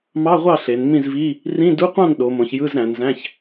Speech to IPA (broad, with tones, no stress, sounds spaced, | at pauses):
m ɑ˧˥˧ ʁʷ ɑ˥˨ ɬ e˩˧ n m ĩ˥˨ z v i˧˥˧ | r ĩ˧˥˧ d u˧˥˧ qʷ ɑ̃˥˨ n ɗ o˩˧ m õ˩˧ ç j ɯ˧˥˧ z ɾ æ̃˩˧ n z æ̃˧˥˧ ç